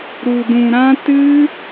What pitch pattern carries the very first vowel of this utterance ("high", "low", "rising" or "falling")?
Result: low